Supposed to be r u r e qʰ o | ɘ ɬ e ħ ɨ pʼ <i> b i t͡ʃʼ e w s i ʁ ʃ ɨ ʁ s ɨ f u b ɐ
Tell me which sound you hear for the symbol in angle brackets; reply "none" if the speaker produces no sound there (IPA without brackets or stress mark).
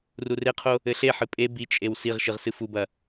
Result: e